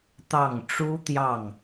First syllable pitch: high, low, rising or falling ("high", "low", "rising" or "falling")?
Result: falling